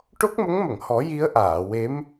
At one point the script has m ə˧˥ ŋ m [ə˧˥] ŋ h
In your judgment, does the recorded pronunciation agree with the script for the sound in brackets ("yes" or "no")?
no